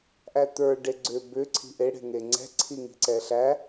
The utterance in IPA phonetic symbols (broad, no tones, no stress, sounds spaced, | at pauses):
ʔ æ t̪ ə˞ ɖ e ɡ͡ǀ ʏ b ʏ ǀʰ i̤ ʔ e ɽ e̤ ŋ e ŋ͡ǀ ɛ̤ ǀʰ i ŋ i̤ ǀ ɛ ɬ æ